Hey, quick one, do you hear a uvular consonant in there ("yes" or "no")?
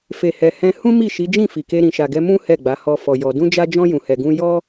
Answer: no